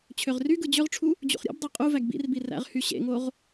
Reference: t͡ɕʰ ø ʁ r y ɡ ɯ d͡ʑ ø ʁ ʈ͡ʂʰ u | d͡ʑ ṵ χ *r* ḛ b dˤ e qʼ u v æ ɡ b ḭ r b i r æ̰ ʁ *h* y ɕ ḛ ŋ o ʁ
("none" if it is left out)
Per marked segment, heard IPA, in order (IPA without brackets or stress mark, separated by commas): ɾʲ, h